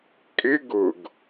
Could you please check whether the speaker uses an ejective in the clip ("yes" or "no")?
yes